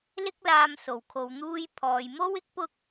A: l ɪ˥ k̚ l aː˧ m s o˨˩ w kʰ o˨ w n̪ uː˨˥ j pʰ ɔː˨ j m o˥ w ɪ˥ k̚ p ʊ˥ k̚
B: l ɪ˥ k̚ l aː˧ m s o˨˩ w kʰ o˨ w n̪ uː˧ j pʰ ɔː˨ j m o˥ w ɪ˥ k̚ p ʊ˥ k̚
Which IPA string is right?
B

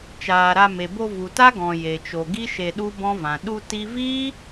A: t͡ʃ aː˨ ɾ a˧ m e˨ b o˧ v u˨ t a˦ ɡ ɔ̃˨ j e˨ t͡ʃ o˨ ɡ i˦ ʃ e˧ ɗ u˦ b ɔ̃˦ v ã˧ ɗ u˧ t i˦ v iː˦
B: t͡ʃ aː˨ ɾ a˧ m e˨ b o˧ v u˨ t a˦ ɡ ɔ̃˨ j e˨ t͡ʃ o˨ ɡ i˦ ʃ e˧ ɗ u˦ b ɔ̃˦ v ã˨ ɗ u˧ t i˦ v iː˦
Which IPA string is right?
B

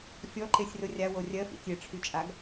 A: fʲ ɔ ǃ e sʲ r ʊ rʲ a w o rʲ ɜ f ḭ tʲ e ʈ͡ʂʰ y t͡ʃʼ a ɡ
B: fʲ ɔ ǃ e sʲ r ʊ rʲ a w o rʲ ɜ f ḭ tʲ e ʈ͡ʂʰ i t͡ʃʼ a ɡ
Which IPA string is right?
A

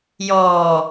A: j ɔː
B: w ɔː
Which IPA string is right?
A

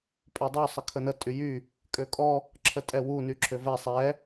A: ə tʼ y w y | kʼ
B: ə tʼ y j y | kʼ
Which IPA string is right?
B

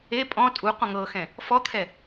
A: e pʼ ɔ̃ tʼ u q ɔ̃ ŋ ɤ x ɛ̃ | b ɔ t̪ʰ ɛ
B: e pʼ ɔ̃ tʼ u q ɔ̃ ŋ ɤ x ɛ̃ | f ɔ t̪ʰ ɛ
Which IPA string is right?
B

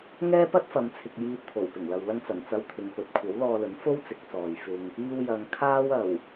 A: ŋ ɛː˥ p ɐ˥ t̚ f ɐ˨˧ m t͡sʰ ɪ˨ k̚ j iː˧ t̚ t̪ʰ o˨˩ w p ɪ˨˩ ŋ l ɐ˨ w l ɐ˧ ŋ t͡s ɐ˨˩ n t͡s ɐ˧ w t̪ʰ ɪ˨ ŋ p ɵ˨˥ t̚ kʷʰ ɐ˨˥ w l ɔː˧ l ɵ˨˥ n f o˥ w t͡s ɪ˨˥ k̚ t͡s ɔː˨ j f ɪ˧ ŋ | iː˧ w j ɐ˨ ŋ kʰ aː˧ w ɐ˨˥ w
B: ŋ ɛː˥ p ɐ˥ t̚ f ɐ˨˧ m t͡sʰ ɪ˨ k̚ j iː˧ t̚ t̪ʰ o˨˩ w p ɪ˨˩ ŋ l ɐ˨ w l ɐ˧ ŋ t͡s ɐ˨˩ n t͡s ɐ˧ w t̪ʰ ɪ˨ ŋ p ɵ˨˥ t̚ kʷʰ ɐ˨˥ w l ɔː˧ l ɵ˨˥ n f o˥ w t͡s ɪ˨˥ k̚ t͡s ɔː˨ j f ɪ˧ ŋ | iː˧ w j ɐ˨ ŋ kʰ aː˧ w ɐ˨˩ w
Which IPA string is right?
B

